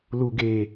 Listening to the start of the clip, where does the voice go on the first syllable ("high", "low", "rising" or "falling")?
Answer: low